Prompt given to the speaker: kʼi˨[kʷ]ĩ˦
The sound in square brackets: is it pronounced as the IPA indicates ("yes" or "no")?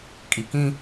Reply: no